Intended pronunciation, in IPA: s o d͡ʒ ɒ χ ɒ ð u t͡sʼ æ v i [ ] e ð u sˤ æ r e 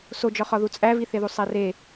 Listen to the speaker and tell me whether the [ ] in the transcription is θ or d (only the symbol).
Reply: θ